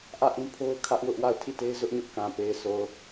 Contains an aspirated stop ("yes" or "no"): yes